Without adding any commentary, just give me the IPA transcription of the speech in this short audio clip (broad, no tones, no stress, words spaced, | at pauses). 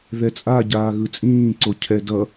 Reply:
ðɛt͡sʼa ɟaːɣɯt͡sʼĩːǀo cʰɛdʌ